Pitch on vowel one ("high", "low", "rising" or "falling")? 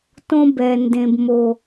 high